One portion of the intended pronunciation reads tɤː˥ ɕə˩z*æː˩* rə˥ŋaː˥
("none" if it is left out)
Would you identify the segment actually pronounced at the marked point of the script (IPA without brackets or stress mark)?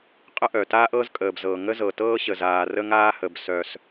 aː˩